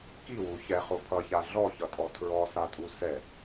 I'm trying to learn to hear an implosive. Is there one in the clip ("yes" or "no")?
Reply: no